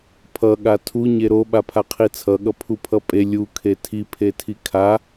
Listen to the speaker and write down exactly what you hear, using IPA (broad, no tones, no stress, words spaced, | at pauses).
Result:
pʰʌ ɠatʰu ɲeɾo ɓapʰaqʰit͡sʰʌ ɠʌpʰupʰʌpʼe lʲu kʰetʰi pʰetʰikʰa